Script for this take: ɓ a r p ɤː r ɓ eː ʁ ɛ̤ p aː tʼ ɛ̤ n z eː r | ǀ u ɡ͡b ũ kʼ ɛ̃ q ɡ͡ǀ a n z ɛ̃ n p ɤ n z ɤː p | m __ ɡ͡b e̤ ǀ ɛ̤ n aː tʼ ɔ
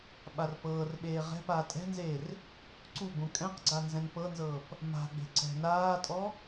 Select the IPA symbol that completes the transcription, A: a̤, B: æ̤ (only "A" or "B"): A